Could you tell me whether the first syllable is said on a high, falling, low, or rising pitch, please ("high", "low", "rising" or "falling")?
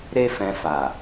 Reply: high